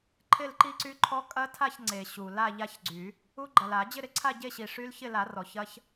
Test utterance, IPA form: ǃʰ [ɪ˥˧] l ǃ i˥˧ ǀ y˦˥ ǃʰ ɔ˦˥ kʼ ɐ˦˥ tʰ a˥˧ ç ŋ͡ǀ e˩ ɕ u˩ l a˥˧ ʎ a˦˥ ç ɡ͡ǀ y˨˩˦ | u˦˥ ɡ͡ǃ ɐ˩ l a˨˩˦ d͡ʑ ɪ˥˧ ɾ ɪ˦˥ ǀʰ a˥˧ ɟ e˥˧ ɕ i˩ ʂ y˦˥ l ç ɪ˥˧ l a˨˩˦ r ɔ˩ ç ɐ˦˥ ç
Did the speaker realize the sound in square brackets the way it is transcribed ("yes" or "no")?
yes